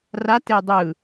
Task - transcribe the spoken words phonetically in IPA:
r a t e dˤ ɯ

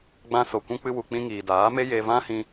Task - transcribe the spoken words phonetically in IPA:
ɡ͡b ã˧ s o˨ kʷ ũ˧ k͡p ɨ˧ w u˨ k͡p ĩ˧ ŋ iː˨ d aː˨˦ m e˦ j e˧ v ã˦ h ĩ˧

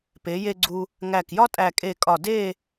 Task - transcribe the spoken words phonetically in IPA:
p e˩˧ j e˧ ɡ͡ǀ u˧ | ŋ æ˧˩ k j ɒ˥ tʼ æ˧˩ kʼ e˧˩ kʼ ɒ˧˩ d e˥˧

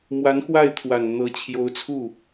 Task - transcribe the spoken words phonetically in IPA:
m w a˧˥ n x w a˥˩ ɪ̯ t̪ʰ w a˨˩ n n̪ ɤ˧˥ t͡ɕʰ j o˧˥ ʊ̯ t͡sʰ u˥˩

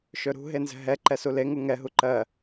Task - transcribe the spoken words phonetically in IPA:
ʃ ɵ ɾ ṳ ɦ e n z ɛ̤ ɦ ɛ ǃ ɛ s u l e ŋ u ŋ ɛ ɦ u ǃ ɜ

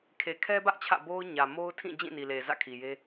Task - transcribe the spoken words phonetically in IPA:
kʰ e˨ kʰ ɛ˦ b ä˦ ʔ t͡ɕʰ ä̰˦˨ b o˦ ʊ̯ ɲ ä˨ m o˦ ʊ̯ tʰ ĩ˦˨ d͡ʑ ĩ˦˨ n i˨ l e˨ z ä̰˦˨ kʰ i˨ j e˦

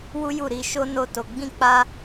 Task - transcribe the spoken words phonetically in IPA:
w u˦ j u˦˨ ɾ i˧ ʃ o˦ n o˦ t o˧ ɡ͡b ĩ˦ k͡p a˦

